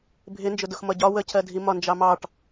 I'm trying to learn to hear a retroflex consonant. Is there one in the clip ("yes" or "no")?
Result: yes